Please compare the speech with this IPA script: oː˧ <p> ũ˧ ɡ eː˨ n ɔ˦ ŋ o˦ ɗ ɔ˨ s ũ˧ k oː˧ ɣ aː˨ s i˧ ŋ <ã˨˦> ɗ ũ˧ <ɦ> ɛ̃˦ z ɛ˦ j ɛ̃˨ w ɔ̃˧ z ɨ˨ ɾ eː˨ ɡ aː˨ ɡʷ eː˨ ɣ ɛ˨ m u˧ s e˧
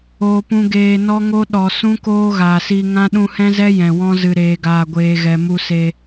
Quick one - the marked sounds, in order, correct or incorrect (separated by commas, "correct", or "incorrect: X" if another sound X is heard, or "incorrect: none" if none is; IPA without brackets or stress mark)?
correct, incorrect: ã˦, incorrect: h